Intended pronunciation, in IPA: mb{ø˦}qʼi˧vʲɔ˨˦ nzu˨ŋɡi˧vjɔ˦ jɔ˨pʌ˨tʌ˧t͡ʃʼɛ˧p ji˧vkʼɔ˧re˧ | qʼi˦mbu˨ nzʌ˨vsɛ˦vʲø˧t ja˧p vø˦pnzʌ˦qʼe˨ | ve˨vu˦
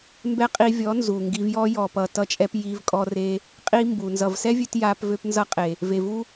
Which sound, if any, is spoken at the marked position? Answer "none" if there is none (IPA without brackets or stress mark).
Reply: ɛ˦